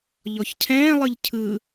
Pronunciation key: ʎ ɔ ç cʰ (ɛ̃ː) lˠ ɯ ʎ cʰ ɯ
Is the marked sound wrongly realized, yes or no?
no